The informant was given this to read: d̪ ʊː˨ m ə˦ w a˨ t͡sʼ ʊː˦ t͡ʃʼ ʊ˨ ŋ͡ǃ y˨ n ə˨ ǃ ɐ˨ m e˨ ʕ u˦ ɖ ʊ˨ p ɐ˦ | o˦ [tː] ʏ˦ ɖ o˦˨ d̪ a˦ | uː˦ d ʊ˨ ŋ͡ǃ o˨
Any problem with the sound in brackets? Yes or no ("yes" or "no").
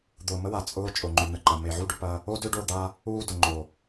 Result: yes